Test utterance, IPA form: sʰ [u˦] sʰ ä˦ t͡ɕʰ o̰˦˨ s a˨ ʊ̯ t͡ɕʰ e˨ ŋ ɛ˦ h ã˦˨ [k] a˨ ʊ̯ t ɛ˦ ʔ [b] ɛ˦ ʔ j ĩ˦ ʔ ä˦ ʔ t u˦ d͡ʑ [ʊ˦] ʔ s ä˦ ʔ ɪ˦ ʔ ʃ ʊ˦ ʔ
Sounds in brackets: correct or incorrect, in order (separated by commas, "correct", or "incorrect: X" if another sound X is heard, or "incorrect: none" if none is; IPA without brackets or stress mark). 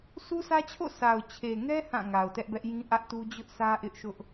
correct, incorrect: ŋ, correct, correct